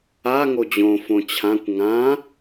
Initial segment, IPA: a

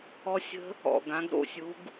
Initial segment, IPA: ɔ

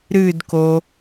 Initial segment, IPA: ɾ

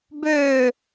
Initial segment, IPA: b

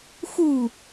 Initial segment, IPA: x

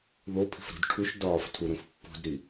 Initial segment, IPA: ð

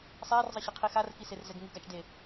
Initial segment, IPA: sˤ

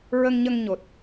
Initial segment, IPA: ɹ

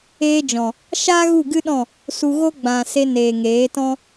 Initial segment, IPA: eː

